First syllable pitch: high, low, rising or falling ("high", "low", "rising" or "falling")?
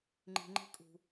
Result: low